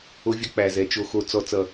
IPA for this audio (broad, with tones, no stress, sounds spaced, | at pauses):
o˦ vʲ ə˦ k͡p æ˨ z ɛ˨ t͡ʃ o˨ x o˨ t͡s ɔ˨ t͡s ʌ˨